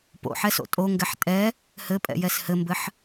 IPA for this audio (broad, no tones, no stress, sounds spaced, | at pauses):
p o̰ ħ ɛ s o̰ tʼ o ŋ ɡ ɛ ħ tʼ ɛ | h ɘ pʼ ɛ̰ j ɛ s h ɘ m b ɘ ħ